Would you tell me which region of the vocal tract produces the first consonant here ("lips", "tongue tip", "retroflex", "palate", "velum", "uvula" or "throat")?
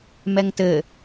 lips